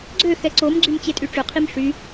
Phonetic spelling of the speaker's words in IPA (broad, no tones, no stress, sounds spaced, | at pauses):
ɡ͡ǀ ø x ɛ ǀ o m ɡ͡ǀ y m t͡ɕ e tʼ y ʈ͡ʂ ø qʰ i m ʂ y